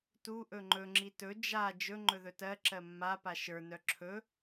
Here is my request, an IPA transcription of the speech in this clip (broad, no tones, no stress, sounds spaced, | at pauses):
t u ʔ ɵ ŋ͡ǃ ɵ ŋ͡ǁ i t ɵ d͡ʒ a d͡ʒ ɵ ŋ͡ǃ ɵ ð ɵ t ɜ ǁ ɜ mː a p a ʃ ə˞ n œ ǁʰ ɵ